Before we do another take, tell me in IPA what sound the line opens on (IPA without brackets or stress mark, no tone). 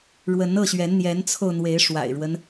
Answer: ɻ